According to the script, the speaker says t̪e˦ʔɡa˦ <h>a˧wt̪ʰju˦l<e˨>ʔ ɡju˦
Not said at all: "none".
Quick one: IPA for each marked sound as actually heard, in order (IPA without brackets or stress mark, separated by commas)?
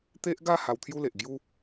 h, e˨